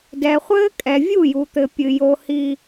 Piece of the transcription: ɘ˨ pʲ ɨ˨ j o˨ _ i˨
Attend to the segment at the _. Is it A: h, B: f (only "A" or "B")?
A